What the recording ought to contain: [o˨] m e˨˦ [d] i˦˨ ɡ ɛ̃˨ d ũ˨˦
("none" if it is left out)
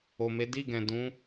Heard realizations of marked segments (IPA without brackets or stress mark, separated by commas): o˨, d